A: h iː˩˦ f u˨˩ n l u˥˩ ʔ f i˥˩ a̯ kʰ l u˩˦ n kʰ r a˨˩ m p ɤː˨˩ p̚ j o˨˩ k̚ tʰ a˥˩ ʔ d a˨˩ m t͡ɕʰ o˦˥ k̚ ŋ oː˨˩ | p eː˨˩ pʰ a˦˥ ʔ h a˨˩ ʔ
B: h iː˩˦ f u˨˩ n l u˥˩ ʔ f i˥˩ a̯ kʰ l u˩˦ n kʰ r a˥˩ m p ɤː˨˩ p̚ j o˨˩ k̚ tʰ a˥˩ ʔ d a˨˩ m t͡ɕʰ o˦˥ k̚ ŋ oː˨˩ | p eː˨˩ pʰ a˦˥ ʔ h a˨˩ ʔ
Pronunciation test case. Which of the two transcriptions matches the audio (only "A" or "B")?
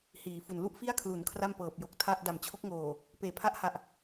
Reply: B